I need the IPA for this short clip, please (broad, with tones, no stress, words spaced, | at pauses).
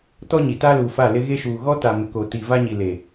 tɔ˦ɲi˨ ta˦luː˨fa˦˨ lɪ˦ɣe˦ʃuː˨ ɣɔ˦ta˨ mɪ˨ko˨ ti˨va˦ɲi˨le˨